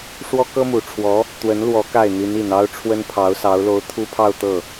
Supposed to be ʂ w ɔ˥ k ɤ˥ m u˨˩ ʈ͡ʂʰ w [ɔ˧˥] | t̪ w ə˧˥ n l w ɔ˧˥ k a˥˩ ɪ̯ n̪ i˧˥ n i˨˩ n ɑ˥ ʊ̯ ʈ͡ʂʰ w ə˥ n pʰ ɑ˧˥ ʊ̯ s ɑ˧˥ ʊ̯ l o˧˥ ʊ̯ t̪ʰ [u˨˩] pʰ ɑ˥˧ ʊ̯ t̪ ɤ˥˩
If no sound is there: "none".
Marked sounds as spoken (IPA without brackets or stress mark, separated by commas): ɔ˧˥, u˥